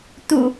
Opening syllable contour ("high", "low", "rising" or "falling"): low